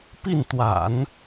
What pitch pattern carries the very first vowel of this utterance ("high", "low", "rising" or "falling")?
falling